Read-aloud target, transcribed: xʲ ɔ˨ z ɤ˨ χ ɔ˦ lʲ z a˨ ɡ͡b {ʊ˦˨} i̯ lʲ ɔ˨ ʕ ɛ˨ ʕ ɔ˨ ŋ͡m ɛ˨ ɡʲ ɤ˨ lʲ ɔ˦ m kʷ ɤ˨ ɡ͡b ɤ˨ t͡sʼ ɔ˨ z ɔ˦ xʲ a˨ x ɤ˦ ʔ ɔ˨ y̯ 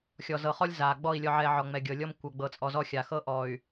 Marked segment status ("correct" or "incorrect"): incorrect